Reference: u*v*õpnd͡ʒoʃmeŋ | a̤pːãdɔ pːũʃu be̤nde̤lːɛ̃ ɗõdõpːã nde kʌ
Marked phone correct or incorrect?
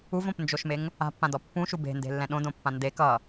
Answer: correct